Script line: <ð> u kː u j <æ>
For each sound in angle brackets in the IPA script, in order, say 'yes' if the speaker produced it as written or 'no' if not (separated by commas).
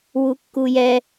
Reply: no, no